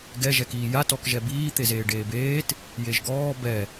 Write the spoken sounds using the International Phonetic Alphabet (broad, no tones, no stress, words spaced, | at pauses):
ɡɛ ʒɛkiːja tɔkʒɛbiː t̪ezeːɖeːbeːt | jeʒɡɔː bɛ